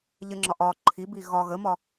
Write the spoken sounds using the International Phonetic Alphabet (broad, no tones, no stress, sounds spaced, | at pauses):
ʎ ə ŋ͡ǁ ɒ ʔ ɒ ǃʰ i b i ɣ ɒ ɣ ə m ɒ